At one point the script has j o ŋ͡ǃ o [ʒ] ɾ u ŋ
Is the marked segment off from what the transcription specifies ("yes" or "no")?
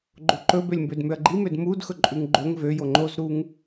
yes